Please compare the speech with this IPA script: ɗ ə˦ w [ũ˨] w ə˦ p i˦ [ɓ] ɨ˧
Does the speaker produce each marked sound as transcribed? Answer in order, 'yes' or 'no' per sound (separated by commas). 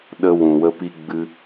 yes, no